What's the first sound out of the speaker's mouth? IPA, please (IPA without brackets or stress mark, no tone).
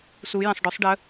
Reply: s